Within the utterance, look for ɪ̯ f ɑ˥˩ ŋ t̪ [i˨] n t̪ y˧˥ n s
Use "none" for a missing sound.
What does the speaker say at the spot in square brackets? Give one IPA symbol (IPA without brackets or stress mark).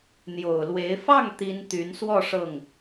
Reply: i˥